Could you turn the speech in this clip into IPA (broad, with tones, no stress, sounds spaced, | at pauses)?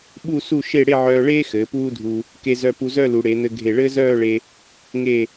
ɓ u˥˧ s u˥˧ ʃ e˥˧ ɽ e˥˧ ʕ œː˧ ɭ eː˥ x ɘː˩˧ p uː˥ dʱ u˧ | k e˧ z œ˧ p u˧ z œ˥˧ l u˩˧ ɽ e˩˧ n̪ ɘ˧ ɡʱ e˧˩ ɭ ɘː˥ z œː˥˧ ɭ e˧ | ŋ e˧˩